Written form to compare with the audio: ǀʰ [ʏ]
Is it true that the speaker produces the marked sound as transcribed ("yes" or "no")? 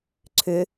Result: yes